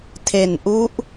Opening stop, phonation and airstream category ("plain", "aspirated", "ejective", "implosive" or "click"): aspirated